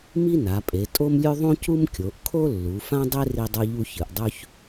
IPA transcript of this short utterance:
mi˥na˩˧pʼe˩˧ tʼo˥mlʲʉ˥ ðˤũ˥cu˥m kʲo˩˧ʔkʰo˥ lːu˩˧fã˥dˤe˥ ri˥dˤu˥ʎu˥ çɨ˩˧ʔdˤʉ˥ç

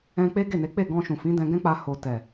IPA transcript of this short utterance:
ɛ̃˧k͡pe˦ ɡe˦˨ne˨˦k͡pe˦˨ ɡɔ̃˧ʃũ˨ fĩ˨˦dɛ̃˧ɡɛ̃˦k͡pa˧ ho˨ tɛ˨

